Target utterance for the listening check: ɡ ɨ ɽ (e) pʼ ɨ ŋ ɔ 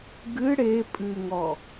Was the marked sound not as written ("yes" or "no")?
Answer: no